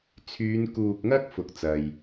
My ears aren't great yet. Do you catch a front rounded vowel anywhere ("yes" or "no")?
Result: yes